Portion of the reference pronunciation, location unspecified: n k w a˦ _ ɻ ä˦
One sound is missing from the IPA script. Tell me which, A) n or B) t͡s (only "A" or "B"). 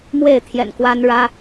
A